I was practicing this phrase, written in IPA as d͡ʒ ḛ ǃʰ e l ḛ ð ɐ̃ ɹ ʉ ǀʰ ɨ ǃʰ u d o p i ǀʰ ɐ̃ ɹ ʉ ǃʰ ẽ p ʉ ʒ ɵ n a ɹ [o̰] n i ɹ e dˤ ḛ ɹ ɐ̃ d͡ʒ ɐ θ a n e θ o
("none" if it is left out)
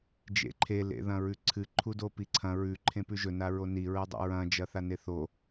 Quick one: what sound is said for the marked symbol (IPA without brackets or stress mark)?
o